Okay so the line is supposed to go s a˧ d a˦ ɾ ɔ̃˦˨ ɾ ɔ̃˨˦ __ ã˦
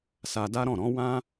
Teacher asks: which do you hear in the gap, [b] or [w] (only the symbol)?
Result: w